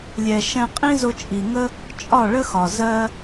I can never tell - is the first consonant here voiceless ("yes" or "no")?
no